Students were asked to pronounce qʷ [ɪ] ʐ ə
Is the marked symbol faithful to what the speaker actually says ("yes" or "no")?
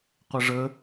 yes